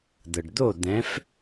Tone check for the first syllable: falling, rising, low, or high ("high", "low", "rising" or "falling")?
low